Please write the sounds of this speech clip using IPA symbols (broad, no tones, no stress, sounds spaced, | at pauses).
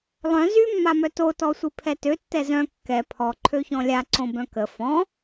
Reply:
lˠ œ̃ z y mː a m œ t o t ɔ sʷ i pʰ ɛ t ø tː ɛ z œ̃ kː ɛ pʰ ɔ ǃʰ ø ç ɔ̃ lʲ a ǀ õ b œ̃ k ə f ɔ̃